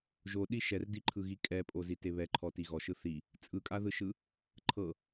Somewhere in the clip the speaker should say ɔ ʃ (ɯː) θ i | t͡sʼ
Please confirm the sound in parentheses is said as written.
no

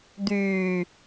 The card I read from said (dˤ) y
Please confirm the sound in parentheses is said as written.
no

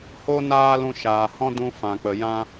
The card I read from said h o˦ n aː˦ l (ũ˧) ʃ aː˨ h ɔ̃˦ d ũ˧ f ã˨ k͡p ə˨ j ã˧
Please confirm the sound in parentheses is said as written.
yes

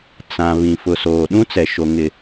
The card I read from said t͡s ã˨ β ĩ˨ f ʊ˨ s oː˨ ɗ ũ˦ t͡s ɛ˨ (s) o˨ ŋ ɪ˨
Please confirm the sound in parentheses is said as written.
no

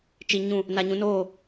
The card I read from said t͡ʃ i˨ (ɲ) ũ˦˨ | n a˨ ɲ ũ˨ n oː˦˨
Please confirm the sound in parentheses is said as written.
yes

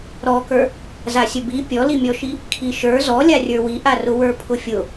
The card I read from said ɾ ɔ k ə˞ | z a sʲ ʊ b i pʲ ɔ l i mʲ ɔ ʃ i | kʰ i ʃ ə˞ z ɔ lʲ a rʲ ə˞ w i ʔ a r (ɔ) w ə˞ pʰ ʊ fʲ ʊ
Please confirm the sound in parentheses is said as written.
no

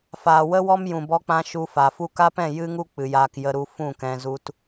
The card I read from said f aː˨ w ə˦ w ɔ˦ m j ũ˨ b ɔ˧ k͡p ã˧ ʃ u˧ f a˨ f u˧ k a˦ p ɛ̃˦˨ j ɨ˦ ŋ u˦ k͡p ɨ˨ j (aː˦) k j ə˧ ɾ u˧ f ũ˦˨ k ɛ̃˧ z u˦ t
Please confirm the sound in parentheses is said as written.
no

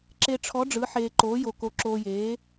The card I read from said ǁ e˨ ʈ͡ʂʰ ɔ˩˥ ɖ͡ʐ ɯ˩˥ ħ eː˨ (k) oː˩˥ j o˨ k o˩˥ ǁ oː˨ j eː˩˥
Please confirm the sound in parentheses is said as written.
no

